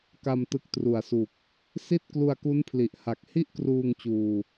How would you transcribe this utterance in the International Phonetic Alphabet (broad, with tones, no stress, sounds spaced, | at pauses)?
k a˧ m t ɯ˨˩ k̚ t r u˨˩ a̯ s u˨˩ k̚ | s i˥˩ t̚ k l u˧ a̯ k u˦˥ n pʰ l i˨˩ ʔ h a˨˩ k̚ h i˥˩ ʔ k r uː˧ ŋ t͡ɕ uː˧